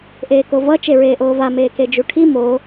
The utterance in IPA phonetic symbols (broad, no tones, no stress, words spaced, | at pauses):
ʔeːkovʌ t͡ʃeɹeːʔoːva meːked͡ʒuʈʰi mo